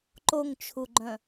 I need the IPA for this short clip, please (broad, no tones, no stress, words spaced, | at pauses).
ǃoŋt͡ʃʰuɡ͡ǃœ̃